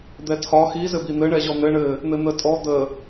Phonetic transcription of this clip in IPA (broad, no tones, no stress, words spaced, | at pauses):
d̪ɛtʰɒ xi zɘbin̪ɘ ɳɛʑɔn̪ɘ ɳɘ | n̪ɘn̪ətʼɔ d̪ə